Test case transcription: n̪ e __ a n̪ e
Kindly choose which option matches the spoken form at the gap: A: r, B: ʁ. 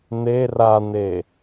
A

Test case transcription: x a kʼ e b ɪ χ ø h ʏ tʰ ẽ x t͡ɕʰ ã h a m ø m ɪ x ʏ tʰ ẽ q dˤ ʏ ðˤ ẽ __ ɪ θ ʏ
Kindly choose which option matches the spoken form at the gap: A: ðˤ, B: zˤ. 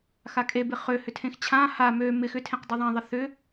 A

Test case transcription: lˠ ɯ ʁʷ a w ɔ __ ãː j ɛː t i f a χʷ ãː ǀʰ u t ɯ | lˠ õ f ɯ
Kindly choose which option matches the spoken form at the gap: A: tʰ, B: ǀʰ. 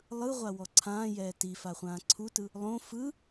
B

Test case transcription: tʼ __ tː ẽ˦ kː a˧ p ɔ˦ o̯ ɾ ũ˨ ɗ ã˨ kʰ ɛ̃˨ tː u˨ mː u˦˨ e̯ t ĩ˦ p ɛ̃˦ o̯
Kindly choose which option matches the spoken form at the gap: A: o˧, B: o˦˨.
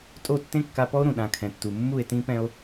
B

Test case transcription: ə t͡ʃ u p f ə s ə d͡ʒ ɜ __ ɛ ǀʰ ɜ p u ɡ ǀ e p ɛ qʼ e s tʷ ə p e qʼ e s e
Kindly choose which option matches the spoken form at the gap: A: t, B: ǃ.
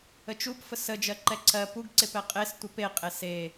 B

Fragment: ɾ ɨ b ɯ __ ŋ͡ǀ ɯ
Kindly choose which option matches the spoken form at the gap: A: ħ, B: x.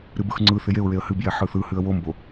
B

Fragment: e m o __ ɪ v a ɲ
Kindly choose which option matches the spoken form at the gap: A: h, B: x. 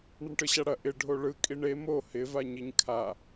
A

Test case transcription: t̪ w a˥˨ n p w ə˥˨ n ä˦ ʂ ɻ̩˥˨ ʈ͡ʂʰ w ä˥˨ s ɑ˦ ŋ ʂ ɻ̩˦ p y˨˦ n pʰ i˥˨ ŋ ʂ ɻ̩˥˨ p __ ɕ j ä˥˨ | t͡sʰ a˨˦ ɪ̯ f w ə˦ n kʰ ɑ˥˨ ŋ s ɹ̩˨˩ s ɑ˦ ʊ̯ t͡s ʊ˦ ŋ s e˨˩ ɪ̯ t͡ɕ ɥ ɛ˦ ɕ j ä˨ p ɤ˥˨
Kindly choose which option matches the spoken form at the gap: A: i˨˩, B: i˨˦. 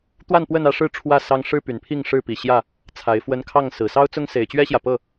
A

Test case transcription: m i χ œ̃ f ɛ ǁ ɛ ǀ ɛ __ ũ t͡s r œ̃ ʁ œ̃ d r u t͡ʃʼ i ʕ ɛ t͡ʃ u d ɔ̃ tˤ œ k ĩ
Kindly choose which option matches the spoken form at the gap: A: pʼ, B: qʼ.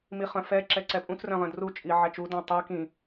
A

